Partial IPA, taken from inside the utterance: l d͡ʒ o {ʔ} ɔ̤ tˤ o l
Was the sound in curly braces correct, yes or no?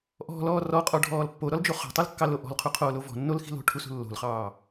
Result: no